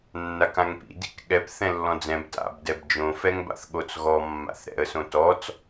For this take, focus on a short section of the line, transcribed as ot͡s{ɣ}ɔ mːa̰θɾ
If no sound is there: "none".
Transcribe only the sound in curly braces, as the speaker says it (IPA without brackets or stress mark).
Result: ɣ